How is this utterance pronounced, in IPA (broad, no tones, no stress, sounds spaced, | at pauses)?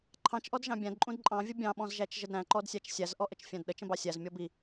ǃʰ ɑ̃ t͡ʃ ʔ ɔ d ʒ ɑ̃ bʲ æ̃ d ǃʼ ũ d ǃʼ ɑ̃ vʲ ə bʲ ɑ̃ ɓ ɔ̃ z ʒ æ t͡ʃ ʒ ə d ɾ æ̃ ǃ ɔ d sʲ æ t͡ʃ sʲ æ z ʔ ɔ ʔ ə t͡ʃ fʲ æ̃ d ɗ ə t͡ʃ ə̃ b ɑ sʲ æ z mʲ ɔ b i